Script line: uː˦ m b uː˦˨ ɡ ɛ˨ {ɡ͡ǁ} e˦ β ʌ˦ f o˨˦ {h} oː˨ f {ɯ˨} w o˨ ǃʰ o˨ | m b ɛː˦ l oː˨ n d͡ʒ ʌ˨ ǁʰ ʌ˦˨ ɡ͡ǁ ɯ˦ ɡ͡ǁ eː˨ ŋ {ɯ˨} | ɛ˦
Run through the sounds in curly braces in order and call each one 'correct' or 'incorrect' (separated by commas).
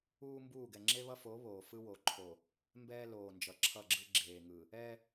incorrect, incorrect, incorrect, correct